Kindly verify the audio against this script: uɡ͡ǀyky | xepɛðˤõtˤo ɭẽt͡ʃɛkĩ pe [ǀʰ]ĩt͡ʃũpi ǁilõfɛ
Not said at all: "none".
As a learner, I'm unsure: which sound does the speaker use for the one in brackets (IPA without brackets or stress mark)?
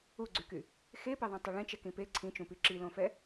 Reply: ǀʰ